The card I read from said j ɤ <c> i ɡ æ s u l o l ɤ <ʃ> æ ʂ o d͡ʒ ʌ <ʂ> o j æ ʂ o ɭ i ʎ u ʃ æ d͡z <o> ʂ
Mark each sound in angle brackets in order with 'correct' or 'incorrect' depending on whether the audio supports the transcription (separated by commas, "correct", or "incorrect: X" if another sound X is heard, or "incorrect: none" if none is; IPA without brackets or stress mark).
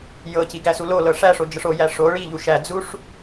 correct, incorrect: ʂ, correct, incorrect: u